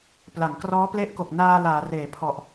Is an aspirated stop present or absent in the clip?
present